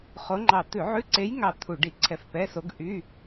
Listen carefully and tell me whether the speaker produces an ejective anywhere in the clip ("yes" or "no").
no